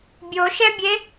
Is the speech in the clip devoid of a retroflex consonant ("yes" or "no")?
yes